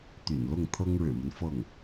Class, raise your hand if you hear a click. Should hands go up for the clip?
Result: no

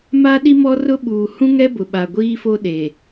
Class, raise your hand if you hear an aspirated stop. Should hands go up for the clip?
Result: no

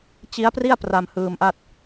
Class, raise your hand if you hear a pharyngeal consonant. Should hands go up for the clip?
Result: no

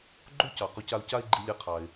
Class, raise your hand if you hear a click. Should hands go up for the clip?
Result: yes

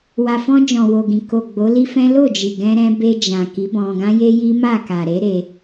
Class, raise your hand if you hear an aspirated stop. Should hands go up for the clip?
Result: no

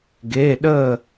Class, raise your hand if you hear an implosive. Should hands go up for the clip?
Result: yes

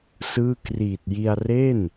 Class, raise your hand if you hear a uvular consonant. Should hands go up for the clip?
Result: no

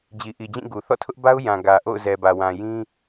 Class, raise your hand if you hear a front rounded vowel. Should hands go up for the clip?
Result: no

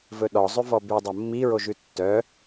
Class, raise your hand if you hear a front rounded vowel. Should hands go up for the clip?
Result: yes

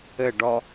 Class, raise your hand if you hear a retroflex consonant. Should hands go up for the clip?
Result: yes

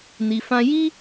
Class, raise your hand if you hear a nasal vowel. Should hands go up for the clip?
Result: yes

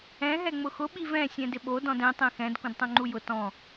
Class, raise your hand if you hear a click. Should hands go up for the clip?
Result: yes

